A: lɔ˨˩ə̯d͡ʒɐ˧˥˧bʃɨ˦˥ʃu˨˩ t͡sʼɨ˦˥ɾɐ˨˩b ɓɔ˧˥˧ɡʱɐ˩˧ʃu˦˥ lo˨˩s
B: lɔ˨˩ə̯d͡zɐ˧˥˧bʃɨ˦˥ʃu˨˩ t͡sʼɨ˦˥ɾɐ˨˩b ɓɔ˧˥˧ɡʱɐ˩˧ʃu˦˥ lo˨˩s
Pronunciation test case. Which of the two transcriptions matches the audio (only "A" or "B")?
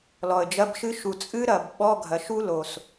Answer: A